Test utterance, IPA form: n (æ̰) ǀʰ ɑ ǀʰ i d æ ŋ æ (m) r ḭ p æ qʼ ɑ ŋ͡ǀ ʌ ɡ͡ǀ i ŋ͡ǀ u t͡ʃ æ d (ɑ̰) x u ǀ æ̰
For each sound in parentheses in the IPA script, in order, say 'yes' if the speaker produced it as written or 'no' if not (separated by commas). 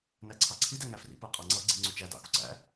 no, no, yes